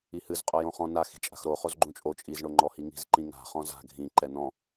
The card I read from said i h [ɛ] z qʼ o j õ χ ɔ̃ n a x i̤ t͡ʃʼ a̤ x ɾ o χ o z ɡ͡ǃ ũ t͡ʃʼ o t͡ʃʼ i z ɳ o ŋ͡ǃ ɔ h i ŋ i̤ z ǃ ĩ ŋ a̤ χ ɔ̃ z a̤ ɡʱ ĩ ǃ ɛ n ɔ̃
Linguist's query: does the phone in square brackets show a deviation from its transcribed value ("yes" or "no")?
yes